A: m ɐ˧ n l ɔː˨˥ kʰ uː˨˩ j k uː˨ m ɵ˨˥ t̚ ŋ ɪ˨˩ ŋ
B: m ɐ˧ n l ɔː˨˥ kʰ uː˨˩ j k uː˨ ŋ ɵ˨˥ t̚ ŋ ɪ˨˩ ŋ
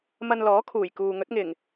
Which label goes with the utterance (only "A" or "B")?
B